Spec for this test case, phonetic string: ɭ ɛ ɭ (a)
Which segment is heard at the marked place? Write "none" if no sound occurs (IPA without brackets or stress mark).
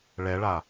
a